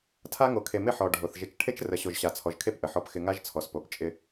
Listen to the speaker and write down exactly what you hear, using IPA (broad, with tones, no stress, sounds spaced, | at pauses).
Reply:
tʰ a˦ ŋ o˨ kʰ e˨ m ɪ˦˨ ħ ɔ˨ ɖʱ o˨ θ ʒ ɪ˨ t͡ʃ ʈʰ e˦ t͡ʃ r ə˨ ɕ o˨ ʒ ɕ a˨ t͡sʰ ɔ˨ ʒ kʰ e˦˨ p ʔ ə˨ ħ ɔ˦ p x ɪ˦ ŋ a˦ ʒ t͡sʰ ɔ˨ s p o˨ p t͡ʃʼ ɪ˦